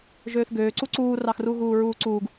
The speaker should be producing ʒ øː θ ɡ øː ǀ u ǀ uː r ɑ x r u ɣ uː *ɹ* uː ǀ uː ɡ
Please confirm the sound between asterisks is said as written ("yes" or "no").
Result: yes